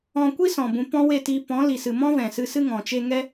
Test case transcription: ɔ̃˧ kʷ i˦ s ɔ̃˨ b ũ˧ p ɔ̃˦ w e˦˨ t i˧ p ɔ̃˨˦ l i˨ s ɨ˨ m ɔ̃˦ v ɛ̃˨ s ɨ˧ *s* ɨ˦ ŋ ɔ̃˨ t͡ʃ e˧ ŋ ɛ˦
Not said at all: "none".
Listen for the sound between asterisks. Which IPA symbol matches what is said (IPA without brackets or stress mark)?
s